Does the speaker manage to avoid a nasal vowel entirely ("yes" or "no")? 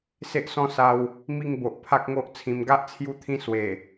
no